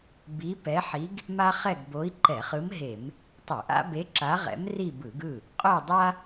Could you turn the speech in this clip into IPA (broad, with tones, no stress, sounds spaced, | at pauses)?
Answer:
b i˧˥ p ɛ˧˥ ħ i˧˥ ɡ | m a˥ χ ɛ˥˧ ɡ b o˧˥ i̯ ǃ ɛ˧˩˧ χ ɯ˧˥ m ɦ e˧˩˧ m | tˤ ɯ˧˩˧ ʔ a̰˥ b e˧˥ ǁ a˧˥ ʁ ɛ̰˧˥ m r i˥˧ b ɯ˧˩˧ ɡ ɯ˥˩ | qʼ o˥˧ dˤ a˥